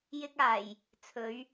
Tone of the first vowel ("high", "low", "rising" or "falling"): high